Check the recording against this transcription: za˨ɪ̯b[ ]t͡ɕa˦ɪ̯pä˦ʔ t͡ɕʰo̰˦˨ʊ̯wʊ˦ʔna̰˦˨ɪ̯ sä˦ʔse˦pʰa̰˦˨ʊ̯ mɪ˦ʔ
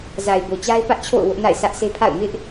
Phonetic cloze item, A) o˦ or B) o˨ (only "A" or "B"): B